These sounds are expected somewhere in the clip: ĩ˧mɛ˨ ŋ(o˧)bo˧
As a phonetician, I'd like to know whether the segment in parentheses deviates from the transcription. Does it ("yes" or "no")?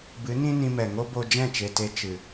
yes